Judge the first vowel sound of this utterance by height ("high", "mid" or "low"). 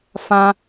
low